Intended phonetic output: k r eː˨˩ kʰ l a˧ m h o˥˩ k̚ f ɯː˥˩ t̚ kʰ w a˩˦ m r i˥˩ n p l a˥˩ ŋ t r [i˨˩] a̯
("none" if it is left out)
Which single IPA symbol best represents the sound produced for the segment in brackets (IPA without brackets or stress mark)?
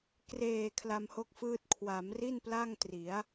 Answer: i˩˦